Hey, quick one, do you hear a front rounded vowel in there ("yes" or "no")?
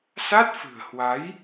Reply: no